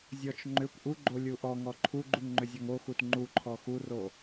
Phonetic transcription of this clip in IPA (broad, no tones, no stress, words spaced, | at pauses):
zʲɔt͡ʃ ŋ͡ǃʏkʷ ʔuɡ͡ǃo lʲuʔɔŋɔ ǃʰuɡ͡ǃuŋ ŋ͡ǃʏzʲɔŋoxut ŋ͡ǃuǃʰɔ xuro